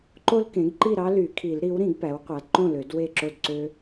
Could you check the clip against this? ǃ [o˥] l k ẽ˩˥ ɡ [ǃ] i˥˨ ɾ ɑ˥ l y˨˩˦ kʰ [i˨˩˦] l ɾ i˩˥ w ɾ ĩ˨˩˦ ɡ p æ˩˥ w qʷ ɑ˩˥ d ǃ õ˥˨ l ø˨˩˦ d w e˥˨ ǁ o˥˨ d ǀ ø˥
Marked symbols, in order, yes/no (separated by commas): yes, yes, yes